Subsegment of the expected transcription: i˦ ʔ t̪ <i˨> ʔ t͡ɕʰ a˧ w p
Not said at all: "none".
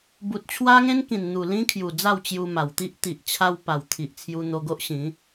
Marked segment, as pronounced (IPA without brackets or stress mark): i˨